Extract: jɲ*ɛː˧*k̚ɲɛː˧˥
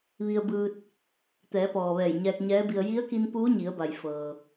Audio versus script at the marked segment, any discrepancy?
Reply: no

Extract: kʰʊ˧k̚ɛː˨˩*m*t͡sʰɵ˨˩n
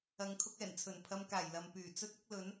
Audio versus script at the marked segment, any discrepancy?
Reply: yes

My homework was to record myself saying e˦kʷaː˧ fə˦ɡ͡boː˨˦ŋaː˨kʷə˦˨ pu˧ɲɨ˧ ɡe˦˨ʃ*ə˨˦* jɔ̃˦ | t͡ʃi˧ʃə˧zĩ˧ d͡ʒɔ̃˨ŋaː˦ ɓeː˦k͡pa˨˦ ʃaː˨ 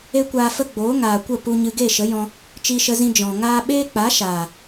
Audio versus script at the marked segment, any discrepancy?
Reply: no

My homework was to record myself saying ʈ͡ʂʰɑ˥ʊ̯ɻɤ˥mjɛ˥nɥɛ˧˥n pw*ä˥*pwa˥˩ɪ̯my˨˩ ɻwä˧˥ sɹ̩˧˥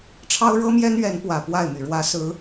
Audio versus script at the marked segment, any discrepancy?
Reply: yes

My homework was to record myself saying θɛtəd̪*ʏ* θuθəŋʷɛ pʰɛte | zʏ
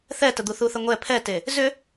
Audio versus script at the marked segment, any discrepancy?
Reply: yes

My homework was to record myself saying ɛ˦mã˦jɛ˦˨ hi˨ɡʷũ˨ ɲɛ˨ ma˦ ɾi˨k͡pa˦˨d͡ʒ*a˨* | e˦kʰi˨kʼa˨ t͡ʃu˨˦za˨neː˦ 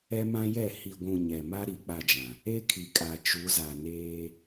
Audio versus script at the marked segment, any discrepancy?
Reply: yes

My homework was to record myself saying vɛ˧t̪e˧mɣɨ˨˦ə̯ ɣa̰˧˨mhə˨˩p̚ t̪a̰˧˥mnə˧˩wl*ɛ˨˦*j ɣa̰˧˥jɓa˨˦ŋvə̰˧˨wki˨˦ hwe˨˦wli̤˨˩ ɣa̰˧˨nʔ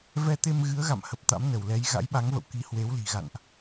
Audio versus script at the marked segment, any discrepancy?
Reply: no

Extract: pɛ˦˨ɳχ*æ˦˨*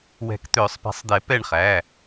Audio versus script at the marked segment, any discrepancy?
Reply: yes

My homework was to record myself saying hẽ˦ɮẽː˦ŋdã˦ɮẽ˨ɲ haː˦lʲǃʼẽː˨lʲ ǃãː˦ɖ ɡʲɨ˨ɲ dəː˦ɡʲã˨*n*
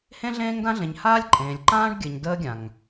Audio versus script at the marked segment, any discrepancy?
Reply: yes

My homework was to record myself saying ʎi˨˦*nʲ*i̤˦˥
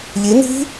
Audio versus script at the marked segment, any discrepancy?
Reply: yes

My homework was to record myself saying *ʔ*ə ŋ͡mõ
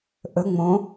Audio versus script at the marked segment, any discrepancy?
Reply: no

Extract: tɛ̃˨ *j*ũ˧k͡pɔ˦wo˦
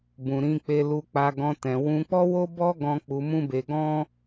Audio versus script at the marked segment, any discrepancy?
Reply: yes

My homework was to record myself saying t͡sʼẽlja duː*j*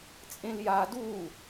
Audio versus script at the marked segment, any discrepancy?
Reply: yes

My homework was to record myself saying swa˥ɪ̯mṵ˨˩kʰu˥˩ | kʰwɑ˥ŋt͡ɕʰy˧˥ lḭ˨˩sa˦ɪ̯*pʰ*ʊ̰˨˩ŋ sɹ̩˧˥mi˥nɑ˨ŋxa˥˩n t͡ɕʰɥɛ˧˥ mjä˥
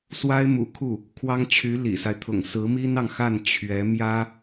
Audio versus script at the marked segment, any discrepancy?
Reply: yes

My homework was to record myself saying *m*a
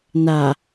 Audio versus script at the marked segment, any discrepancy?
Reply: yes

